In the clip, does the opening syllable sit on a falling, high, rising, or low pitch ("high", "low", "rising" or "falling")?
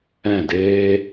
falling